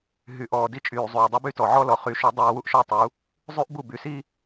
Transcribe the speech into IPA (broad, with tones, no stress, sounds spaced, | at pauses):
ɦ y˨ ʔ ɔː˨ d i˦ t͡ʃʼ yː˨ zˤ yː˨ dˤ y˦ b y˦ t ɔ˨ ʕ ɔ˦ l ɔ˨ χ y˨˦ ʃ u˨˦ dˤ iː˨ w u˦ ʔ ʃ ɔ˦ tˤ u˨˦ | zˤ y˦ ʔ b u˦˨ b y˨ s i˦